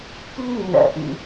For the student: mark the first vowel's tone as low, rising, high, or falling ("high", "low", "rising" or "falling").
high